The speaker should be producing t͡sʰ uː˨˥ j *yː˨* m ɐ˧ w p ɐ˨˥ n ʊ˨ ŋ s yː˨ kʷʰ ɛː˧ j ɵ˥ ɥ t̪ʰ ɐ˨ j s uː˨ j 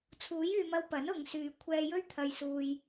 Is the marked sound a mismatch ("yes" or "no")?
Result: no